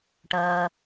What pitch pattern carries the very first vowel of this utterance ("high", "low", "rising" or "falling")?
high